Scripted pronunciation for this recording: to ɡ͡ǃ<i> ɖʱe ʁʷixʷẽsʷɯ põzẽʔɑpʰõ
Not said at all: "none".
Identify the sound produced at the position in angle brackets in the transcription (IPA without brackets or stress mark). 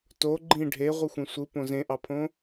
ĩ